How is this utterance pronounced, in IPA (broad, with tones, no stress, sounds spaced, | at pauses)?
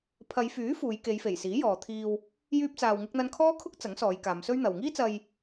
pʰ ɐ˨˧ j f yː˨˥ f uː˨˧ j k e˨˧ j f e˨˩ j s iː˨˥ j ɔː˨ t̪ʰ iː˧ w | j yː˥ p̚ t͡s aː˧ w ŋ ɪ˥ k̚ n̪ ɐ˥ n kʰ ɔː˥ kʰ ʊ˥ k̚ t͡s ɐ˨˥ ŋ s ɔː˨˧ j k aː˨˧ m s ɵ˥ ɥ n̪ ɐ˨ w ŋ iː˥ t͡s ɐ˧ j